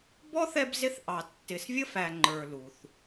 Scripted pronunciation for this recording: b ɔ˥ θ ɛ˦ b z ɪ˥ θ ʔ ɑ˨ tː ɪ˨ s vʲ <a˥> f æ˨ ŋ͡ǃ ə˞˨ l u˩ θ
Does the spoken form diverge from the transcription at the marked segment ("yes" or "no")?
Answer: yes